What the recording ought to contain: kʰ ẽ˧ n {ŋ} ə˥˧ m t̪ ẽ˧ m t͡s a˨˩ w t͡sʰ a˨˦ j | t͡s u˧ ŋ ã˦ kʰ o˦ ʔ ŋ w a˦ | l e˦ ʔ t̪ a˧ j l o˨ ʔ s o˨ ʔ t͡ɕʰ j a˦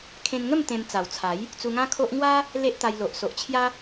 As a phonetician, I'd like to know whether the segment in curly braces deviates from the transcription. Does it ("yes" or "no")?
no